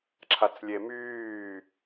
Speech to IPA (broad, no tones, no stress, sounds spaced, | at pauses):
ǁʰ a t͡s lʲ e m yː